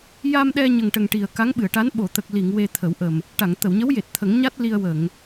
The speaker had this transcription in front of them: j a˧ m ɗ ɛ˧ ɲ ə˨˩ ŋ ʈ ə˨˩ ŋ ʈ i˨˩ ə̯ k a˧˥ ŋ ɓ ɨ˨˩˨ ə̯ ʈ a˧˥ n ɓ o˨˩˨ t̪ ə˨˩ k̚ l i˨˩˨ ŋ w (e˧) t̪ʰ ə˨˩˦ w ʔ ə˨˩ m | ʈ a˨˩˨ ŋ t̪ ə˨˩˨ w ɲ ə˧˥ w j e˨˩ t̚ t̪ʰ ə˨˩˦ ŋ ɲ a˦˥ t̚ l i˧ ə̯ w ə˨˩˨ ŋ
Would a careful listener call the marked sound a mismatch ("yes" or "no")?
no